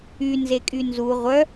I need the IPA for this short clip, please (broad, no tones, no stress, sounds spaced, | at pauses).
y n z e kʼ y n z u ʁʷ œ